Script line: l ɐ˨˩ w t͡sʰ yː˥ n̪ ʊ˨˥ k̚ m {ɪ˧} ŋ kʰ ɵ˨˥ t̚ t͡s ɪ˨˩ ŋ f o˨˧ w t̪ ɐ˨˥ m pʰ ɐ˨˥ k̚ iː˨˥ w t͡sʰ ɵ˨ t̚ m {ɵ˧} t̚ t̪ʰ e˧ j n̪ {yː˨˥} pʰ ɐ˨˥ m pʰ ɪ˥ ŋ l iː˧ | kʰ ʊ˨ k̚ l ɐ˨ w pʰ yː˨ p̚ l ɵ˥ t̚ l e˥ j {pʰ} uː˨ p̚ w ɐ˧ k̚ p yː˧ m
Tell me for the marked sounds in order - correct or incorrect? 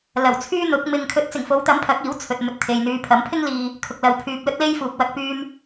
correct, correct, incorrect: yː˧, incorrect: f

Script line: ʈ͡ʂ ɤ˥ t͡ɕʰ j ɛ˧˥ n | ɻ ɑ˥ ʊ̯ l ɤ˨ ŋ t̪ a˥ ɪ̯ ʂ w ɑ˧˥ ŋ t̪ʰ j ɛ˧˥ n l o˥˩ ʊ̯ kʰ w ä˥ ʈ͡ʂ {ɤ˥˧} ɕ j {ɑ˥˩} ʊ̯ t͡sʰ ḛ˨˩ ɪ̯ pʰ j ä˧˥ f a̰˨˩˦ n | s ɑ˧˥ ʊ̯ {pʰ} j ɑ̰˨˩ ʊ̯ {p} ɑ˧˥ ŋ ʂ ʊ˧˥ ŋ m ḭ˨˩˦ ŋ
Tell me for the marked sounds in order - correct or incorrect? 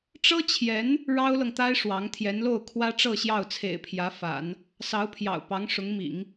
correct, correct, correct, correct

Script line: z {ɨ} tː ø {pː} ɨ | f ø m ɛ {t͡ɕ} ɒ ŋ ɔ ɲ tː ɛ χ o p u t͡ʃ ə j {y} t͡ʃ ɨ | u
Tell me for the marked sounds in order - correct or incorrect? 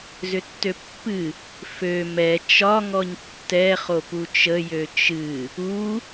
incorrect: ʏ, correct, incorrect: t͡ʃ, incorrect: ø

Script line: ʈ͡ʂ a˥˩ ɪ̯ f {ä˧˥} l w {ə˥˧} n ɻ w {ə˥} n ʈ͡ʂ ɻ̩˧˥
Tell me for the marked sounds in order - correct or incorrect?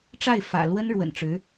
incorrect: ä̰˨˩, incorrect: ə˥, incorrect: ə̰˨˩

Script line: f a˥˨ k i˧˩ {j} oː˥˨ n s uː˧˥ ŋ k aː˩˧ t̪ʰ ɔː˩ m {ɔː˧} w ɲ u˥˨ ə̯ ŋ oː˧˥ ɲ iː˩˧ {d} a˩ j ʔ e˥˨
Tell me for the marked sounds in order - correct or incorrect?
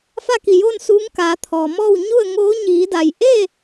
correct, incorrect: ɔː˥˨, correct

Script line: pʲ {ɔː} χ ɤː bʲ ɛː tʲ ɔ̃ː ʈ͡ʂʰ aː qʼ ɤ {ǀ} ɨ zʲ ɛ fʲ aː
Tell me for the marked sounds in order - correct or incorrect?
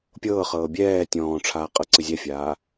incorrect: ɤː, correct

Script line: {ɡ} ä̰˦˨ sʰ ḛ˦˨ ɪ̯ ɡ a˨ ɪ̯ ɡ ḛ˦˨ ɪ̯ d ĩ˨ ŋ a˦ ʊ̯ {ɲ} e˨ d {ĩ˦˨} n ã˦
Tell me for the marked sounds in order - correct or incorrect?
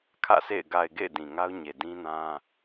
incorrect: kʰ, correct, incorrect: ĩ˦

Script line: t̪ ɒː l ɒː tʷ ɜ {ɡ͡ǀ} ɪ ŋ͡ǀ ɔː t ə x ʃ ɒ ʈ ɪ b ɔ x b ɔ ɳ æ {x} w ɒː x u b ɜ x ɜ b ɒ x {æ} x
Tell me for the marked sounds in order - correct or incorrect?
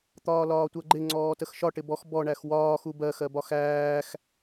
incorrect: ɡ͡ǃ, correct, incorrect: æː

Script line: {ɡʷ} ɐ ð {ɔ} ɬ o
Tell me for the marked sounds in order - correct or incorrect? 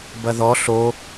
incorrect: b, correct

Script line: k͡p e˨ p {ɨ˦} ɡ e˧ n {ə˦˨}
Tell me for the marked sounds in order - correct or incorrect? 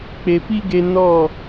incorrect: i˦, incorrect: ɔ˦˨

